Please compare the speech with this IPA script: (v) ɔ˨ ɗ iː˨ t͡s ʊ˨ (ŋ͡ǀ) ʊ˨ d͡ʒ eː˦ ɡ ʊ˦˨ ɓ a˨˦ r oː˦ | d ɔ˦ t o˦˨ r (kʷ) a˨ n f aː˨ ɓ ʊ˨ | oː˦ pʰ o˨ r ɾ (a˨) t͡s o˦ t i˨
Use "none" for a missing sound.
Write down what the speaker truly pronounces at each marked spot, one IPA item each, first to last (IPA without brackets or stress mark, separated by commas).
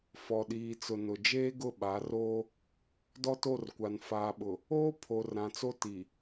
f, n, kʷ, ã˨